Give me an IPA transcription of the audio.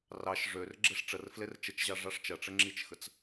r ɑ ʃ ʐ ø r ɡ͡ǁ e ʂ ʈ͡ʂ ə r f l e r t͡ʃ ə t͡ʃ ʑ ɑ ʐ ɑ ʂ t͡ʃ ɐ ʈ͡ʂ ə ŋ͡ǁ i t͡ʃ x ə t͡s

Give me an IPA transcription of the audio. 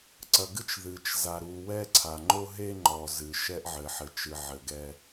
ǀ ɐ˨ ɡ ɨ˦ t͡ʃ ð ɨ˨ t͡ʃ z a˨ ɾ u˨ w ɛ˦ ǀʰ a˨ ŋ͡ǃ o˦ ɦ e˦ ŋ͡ǃ ɔ˨ z ɨ˨ ʃ ɛ˦ ʔ ʕ ɘ˨ ħ ɘ˨ t͡ʃ ɨ˨ ʕ ɘ˨ ɡ ɛ˦

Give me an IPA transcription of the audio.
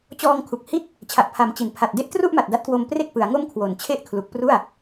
t͡ɕ ɔː˧ ŋ kʰ u˨˩ k̚ h i˥˩ t̚ | t͡ɕʰ a˨˩ ʔ pʰ a˩˦ m t͡ɕ i˨˩ n pʰ a˨˩ t̚ d e˥˩ ʔ t r u˥˩ ʔ m a˨˩ t̚ d a˦˥ t̚ k w o˧ m p r e˥˩ k̚ p ɯ˩˦ a̯ ŋ o˥˩ m kʰ w o˨˩ n t͡ɕʰ e˥˩ ʔ kʰ l u˨˩ k̚ p r u˥˩ a̯

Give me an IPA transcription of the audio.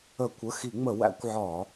ə˧˩˧ kʷ ə˩˧˩ x i˧˩˧ ŋ͡m ə˧˩˧ w æ̰˧˩˧ kʷ ʕ ɒ˧˩˧

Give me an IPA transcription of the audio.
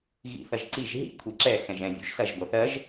ɣ ḭ θ ɐ ʒ ǀ i ʒ ɦ ḭ kʷʰ i ǁ ɛ x ɛ̃ ʒ ɛ̃ vʲ ṵ ʒ s ɐ ʒ ɡʷ ɐ θ ɜ ʒ

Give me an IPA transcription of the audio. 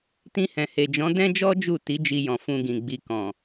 t ĩ˧ h ɛ̃˨ h e˨ d͡ʒ ɔ̃˨˦ d ɛ̃˦ d͡ʒ ɔ˦ d͡ʒ u˦˨ t i˨˦ d͡ʒ i˧ j ɔ̃˨ f ũ˧ ɡ ĩ˨ ɡ͡b i˧ k ɔ̃˨

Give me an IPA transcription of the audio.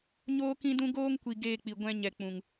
ɲ oː˦ k ĩ˦ d ũ˦ ɡ oː˦ ŋ kʷ i˨ ɡ eː˧ k͡p i˨ ɡʷ ɛ̃˧ ɲ ɛ˨ k͡p ũ˨ ŋ

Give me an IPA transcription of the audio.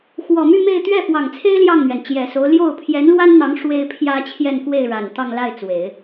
x w ɔ˨˩ m y˥˧ m e˥˧ ɪ̯ t̪ ɥ ɛ˥˩ f w ɑ˨˩ ŋ t͡sʰ e˥ ɪ̯ l j ɑ˥˩ ŋ n̪ ɥ ɛ˩ n t͡ɕ j ɛ˨˩ s o˧˥ ʊ̯ l j o˥˩ ʊ̯ pʰ j ɛ˧˥ n l w a˥ n n̪ ɑ˧˥ ŋ ʂ w e˥ ɪ̯ pʰ j ä˥ t͡ɕʰ j ɛ˥˧ n k w e˥˩ ɪ̯ ɻ a˨˩ n t̪ ɑ˥˧ ŋ l a˥˩ ɪ̯ t͡s w e˨˩˦ ɪ̯

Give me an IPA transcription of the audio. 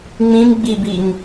ŋ͡m ĩ m ɡ͡b i b i ŋ

